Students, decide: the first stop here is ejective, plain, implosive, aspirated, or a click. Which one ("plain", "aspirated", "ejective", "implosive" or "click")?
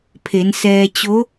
aspirated